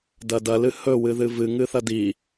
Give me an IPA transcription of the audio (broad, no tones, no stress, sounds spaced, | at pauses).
d ɐ d ɐ l ɨ h ɵ w ɨ ð ɨ v ɨ ŋ ɨ θ ɐ d i